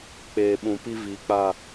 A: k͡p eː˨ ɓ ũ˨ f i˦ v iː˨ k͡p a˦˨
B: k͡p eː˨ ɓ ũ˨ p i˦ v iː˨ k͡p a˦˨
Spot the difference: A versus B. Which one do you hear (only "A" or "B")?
B